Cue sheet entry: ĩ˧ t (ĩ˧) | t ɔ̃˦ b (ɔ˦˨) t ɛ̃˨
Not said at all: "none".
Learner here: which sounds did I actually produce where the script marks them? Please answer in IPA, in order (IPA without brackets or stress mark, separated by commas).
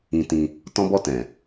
ĩ˧, ɔ˦˨